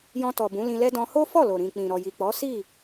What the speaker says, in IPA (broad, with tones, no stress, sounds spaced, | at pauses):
j ɔ̃˧ t ɔ˨ b ũ˨˦ l ĩ˧ l ɛ˦ d ɔ̃˧ h o˦ f ɔ˦˨ l o˨ ɾ ĩ˨ k͡p ĩ˨ ɾ ɔ˨ j i˨ k͡p ɔ˨˦ s i˦˨